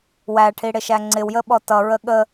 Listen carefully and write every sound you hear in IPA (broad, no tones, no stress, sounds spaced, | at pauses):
w æ ʈʰ i ɽ ɪ ʃ æ ŋ͡ǀ ɪ w j ə ɓ ɔ t ʌ ɹ ə ɠ ə